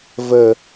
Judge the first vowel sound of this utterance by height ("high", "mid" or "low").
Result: mid